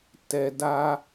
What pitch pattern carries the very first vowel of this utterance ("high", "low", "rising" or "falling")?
low